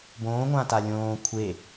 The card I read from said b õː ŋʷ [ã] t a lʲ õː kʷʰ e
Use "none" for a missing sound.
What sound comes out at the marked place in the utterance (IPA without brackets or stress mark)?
ã